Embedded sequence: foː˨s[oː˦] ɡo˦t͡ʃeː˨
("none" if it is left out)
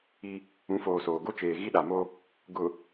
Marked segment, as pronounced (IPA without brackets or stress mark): oː˨